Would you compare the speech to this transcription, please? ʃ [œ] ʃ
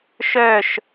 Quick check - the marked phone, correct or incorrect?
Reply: correct